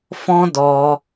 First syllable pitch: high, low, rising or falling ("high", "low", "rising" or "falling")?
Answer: high